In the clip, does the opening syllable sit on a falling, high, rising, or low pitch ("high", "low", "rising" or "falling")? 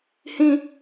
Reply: high